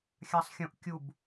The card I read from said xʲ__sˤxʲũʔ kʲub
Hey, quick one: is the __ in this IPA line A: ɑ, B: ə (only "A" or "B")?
A